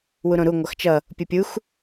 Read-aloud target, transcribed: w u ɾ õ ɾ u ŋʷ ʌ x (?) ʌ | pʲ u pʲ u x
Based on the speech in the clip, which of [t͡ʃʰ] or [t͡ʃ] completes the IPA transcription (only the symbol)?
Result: t͡ʃ